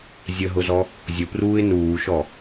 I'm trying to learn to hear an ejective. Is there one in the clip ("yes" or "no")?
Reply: no